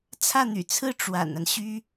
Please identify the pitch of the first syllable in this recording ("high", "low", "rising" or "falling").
falling